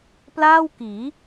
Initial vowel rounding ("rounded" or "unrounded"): unrounded